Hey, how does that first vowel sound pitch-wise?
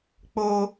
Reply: high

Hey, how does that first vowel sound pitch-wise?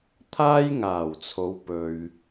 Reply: high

